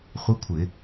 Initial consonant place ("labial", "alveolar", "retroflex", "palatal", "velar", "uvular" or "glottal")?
uvular